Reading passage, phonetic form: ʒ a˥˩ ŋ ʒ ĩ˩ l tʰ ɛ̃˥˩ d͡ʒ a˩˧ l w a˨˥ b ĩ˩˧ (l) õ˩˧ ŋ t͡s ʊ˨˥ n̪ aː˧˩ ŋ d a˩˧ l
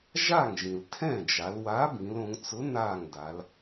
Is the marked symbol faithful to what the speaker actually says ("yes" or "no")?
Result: yes